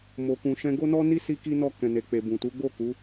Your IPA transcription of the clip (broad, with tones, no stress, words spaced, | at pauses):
mo˨kũ˨ʃɛ̃˧ ɡo˦nɔ˦ni˦ si˦ki˦nɔ˦˨ kɛ̃˨ne˨ k͡pe˨ bũ˨ tu˨˦ɡ͡bo˦˨ ku˨˦